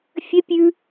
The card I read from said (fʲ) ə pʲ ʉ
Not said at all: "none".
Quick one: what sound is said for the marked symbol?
fʲ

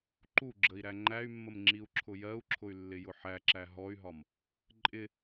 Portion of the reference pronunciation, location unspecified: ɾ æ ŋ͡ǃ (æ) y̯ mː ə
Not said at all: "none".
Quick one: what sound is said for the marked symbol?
æ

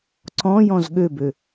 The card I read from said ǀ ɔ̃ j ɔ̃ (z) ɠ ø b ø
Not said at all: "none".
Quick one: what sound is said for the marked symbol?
z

